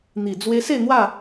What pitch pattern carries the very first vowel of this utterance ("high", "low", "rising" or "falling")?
low